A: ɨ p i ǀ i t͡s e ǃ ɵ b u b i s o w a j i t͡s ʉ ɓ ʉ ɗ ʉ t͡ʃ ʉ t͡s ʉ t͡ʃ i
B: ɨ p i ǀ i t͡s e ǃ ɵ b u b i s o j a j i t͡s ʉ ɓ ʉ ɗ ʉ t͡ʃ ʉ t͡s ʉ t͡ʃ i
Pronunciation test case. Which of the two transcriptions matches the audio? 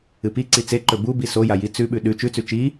B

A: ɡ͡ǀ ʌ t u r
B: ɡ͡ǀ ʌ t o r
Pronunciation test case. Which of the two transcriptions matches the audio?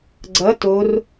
B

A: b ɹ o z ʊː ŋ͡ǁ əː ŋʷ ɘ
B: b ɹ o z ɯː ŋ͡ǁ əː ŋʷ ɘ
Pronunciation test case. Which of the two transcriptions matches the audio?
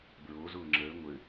A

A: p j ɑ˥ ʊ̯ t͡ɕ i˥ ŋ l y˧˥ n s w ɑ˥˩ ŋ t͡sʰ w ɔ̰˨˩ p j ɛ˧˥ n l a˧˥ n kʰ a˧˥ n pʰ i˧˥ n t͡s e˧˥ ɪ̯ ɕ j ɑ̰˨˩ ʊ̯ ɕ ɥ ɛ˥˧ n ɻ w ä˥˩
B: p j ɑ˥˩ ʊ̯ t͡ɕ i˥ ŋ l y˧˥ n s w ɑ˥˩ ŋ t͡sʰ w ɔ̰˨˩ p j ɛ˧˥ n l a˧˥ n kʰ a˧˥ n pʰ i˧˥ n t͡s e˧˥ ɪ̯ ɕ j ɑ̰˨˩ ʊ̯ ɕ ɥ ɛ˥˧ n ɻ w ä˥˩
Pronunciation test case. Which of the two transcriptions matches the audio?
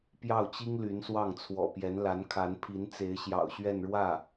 B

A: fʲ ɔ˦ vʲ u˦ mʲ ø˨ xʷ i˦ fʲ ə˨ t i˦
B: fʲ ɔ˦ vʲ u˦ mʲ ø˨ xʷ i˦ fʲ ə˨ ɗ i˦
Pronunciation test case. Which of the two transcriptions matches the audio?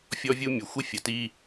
A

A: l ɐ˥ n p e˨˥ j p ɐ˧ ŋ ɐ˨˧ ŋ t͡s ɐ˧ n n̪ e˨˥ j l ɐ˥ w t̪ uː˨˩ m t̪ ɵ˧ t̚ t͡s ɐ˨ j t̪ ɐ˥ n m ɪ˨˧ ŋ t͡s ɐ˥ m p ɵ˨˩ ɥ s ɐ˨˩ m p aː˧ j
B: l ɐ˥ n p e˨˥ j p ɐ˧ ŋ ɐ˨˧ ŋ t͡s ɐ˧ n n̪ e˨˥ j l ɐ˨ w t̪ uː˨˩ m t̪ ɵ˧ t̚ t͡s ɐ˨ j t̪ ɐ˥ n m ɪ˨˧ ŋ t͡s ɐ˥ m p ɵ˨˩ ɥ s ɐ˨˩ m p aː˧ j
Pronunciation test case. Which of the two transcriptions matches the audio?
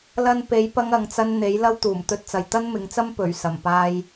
A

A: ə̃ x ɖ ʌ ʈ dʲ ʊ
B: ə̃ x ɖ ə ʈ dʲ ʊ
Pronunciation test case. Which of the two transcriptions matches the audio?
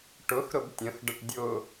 B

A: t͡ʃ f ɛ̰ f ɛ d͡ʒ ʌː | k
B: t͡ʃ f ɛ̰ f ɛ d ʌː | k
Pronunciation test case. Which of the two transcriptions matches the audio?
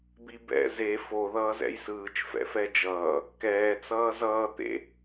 A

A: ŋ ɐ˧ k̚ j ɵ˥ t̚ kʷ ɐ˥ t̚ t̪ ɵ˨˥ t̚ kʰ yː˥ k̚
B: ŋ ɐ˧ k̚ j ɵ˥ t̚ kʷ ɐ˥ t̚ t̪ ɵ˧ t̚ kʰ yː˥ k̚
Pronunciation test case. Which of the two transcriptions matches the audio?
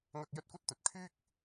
B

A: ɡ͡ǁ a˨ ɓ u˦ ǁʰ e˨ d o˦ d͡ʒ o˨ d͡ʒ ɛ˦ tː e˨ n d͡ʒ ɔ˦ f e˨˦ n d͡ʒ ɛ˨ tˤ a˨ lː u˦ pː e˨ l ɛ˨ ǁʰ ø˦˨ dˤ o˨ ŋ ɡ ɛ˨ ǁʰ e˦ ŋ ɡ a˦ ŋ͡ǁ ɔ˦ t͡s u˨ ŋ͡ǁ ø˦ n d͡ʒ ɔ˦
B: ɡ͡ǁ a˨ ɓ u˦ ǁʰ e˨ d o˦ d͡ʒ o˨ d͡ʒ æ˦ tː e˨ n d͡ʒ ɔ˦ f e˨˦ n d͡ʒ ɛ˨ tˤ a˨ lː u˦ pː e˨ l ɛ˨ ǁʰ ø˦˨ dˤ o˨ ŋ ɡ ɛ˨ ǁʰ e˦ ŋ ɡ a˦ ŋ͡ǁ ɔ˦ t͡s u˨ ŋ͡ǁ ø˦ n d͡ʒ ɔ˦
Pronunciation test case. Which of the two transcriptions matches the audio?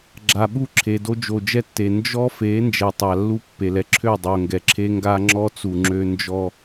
A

